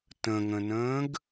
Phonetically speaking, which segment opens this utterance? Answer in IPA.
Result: t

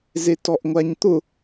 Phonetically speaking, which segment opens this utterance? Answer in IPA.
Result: z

